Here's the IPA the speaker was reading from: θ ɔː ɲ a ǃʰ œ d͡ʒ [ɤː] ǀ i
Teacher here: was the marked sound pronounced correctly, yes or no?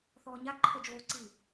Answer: no